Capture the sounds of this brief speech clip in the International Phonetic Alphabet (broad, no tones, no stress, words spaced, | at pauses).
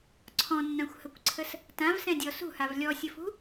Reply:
ǀʰɔ̃nːãxʷhəkʷǀʰəs | tãvsɛ̃dʲɔ sṳhav lʲɔsʲəfṳ